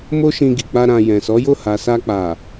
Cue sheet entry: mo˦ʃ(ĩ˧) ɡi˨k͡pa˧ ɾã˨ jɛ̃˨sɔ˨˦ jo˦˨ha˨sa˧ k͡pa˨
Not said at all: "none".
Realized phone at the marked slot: ĩ˧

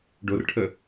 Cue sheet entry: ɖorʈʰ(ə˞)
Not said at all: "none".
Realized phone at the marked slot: ə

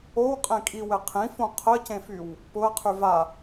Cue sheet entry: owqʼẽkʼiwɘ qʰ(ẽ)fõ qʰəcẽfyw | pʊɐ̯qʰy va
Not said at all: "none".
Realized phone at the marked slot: ĩ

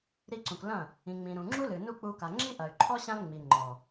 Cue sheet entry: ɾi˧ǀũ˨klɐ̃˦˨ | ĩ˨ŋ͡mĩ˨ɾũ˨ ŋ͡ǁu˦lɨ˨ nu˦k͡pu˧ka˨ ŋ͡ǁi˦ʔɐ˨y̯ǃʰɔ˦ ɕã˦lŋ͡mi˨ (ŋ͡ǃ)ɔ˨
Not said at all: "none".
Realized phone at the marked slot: ŋ͡ǃ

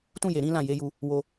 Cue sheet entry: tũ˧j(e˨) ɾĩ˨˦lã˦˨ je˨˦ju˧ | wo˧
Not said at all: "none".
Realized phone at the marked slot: e˨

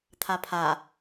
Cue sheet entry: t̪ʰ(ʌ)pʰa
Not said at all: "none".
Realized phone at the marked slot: a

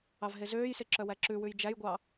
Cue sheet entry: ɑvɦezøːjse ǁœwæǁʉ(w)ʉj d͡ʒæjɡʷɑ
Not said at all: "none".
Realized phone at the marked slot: w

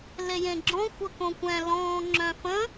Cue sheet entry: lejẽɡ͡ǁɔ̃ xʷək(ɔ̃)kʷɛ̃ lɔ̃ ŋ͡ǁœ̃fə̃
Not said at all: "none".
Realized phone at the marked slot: õ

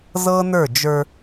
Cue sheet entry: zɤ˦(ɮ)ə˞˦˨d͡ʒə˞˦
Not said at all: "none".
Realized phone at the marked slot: n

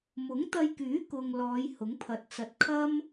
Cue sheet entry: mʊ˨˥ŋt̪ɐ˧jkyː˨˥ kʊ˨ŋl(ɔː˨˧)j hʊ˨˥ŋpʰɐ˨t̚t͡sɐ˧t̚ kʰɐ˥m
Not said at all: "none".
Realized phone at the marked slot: ɔː˨˧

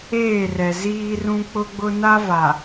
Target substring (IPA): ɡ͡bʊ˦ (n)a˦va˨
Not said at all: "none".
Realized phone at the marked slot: n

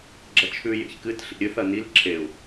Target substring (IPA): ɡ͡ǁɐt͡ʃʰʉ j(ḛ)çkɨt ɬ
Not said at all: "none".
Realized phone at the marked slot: ḛ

